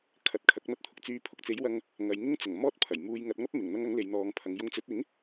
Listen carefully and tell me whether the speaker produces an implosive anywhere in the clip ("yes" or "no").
no